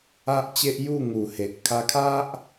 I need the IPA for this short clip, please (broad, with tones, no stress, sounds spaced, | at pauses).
a˦ ʔ t͡ɕ e˦ ʔ j u˥˧ ŋ u˨˩ h e˨ ʔ kʰ a˧ kʰ a˦ ʔ